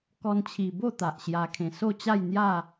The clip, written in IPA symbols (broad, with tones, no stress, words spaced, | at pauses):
kɔ˧nt͡ɕʰi˨˩ bo˥˧ t̪a˨ʔɕja˧ kʰẽ˨˩so˥˧t͡ɕa˥˧jn̪ja˥˧